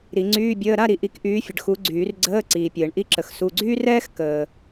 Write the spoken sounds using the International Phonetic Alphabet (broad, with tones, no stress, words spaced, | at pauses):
ɾi˨˩˦ŋ͡ǀyː˧˥˧bʲəː˧˥˧ ɾa˥˨ɾi˨ ʔi˨˥kʔyː˨˥fʲə˨ɖ xu˨˥ɡ͡ǀyː˨˩˦rɡ͡ǀəː˧˥˧ ǀiː˨pʲəː˨˩˦ɳʔi˧˥˧ǁə˨˩˦x su˧˥˧ ɡ͡ǀyː˥rɛː˥x kəː˨